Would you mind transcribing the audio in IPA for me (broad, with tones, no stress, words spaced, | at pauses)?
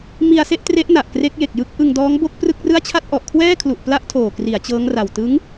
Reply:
mi˧a̯se˥˩ʔtre˦˥ʔna˨˩ʔ kre˦˥k̚je˨˩k̚ jɯ˦˥k̚ʔɯ˧ŋ dɔː˦˥ŋbo˥˩k̚prɯ˥˩k̚rɯ˥˩a̯ t͡ɕʰa˥˩t̚ʔɔ˨˩ʔkʰwɛː˥˩kʰlu˨˩ʔ pla˥˩ʔtʰoː˨˩kri˩˦a̯ t͡ɕɤː˦˥ŋra˨˩w tɯ˦˥ŋ